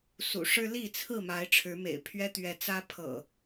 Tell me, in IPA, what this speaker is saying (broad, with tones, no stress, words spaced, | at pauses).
sṵ˨˩ʂɻ̩˦li˥˨ t͡sʰɹ̩˥˨ma˨˦ɪ̯ ʈ͡ʂʰɻ̩˨˦mḛ˨˩ɪ̯pʰɥɛ˦ t̪ɥɛ˨˦t͡sä˦pʰɤ̰˨˩